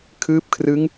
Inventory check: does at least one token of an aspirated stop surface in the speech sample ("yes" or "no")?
yes